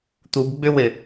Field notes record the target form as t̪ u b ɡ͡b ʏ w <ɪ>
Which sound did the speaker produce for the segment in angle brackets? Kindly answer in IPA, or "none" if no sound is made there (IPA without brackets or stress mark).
ɪ